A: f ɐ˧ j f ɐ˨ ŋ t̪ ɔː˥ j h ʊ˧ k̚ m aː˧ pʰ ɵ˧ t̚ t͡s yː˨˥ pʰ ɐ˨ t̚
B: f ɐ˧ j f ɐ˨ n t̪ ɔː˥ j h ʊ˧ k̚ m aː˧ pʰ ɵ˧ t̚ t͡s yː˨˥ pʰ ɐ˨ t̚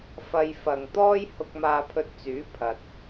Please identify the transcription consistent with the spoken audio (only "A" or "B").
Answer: A